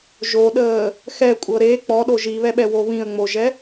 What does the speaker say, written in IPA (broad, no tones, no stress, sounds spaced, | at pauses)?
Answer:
ʒ o ɗ əː | x ɛ kʷʼ ɤ ɾ e k͡p ɔ ɗ o ʒ i β ɛ ɓ ɛ w o β ĩ ə̯ ŋ͡m o ʒ ɛ